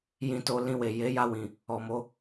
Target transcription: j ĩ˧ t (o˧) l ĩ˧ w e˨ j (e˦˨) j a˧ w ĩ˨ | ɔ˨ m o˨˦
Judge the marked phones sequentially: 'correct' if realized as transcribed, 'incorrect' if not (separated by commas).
correct, incorrect